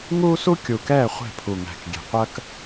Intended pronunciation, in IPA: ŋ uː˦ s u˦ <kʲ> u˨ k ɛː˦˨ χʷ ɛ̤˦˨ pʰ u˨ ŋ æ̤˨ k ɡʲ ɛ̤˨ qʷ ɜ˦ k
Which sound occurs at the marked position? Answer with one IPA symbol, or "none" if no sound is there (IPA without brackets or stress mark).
kʲ